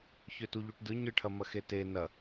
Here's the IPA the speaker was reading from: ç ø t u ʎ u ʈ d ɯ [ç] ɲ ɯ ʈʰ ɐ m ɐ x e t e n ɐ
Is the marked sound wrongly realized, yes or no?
yes